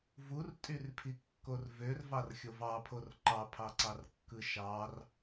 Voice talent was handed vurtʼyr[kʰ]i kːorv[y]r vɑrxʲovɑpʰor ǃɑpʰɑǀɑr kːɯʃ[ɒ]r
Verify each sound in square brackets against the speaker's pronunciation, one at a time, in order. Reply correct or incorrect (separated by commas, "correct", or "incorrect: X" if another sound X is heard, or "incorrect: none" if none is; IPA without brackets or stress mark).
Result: incorrect: pʰ, incorrect: ø, incorrect: ɑ